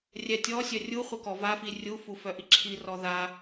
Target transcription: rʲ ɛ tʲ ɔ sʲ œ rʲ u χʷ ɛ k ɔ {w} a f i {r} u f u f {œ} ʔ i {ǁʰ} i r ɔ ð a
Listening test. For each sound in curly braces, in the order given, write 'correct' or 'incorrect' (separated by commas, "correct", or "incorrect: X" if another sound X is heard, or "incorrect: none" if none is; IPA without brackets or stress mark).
incorrect: v, incorrect: rʲ, correct, correct